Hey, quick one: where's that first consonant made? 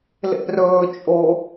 tongue tip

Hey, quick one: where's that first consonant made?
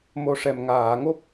lips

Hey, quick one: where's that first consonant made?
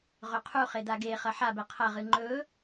uvula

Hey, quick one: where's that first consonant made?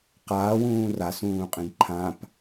uvula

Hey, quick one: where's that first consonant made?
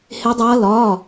throat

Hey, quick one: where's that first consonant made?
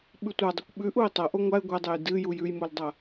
lips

